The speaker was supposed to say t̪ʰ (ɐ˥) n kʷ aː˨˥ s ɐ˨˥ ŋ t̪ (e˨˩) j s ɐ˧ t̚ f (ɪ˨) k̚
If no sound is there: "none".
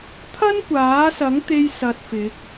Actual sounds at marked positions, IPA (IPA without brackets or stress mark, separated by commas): ɐ˥, e˥, ɪ˨˥